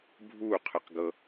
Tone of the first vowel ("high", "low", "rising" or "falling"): falling